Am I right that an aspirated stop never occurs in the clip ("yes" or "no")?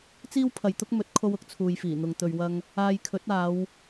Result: no